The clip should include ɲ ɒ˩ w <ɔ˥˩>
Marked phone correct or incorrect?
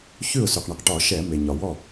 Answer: correct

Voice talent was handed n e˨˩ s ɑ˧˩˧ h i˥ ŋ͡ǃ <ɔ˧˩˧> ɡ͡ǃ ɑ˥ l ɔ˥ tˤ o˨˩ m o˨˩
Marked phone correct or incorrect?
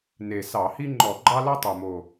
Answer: correct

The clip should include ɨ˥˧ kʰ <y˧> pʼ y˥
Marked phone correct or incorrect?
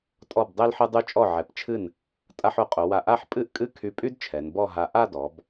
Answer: correct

